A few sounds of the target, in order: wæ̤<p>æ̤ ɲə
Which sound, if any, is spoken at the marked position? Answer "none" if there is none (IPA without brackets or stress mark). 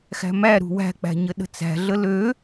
k͡p